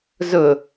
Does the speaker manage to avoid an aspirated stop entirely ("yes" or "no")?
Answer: yes